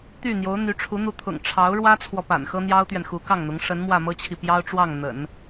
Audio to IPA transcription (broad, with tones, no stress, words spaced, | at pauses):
t̪y˥˩n̪jo˧˥ʊ̯ n̪y˧˥ʈ͡ʂʰu˧˥ n̪u˧˥t̪ʰʊ̰˨˩ŋ ʈ͡ʂʰɑ˧˥ʊ̯ ɻwä˥t͡sʰwɔ˨ pa̰˨˩nxɤ˥n̪jɑ˥ʊ̯t̪ɥɛ˨n xu˧˥kɑ˥˩ŋn̪ʊ˧˥ŋ ʂə˧˥nmwä˥˩mɤ˥t͡ɕʰi˨ pjɑ˥ʊ̯ʈ͡ʂwɑ˥˩ŋn̪ə̰˨˩˦n